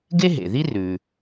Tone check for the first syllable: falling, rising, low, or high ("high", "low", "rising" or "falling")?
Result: high